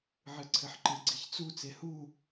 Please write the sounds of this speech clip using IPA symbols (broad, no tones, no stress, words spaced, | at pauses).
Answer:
ʕɨǀʰɘħǃɨ ɡ͡ǀiçt͡su t͡sehu